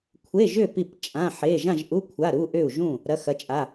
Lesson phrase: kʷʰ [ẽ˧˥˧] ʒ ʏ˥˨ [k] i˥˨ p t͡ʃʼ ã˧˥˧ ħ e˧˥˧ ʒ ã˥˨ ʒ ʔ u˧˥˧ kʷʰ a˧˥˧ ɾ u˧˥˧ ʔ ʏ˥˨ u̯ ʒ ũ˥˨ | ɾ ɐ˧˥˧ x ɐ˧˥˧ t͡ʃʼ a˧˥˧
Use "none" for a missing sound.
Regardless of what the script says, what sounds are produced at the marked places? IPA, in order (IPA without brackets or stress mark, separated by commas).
e˧˥˧, p